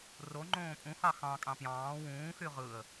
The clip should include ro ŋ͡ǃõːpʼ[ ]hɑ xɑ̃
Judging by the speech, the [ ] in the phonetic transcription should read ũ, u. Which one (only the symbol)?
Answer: ũ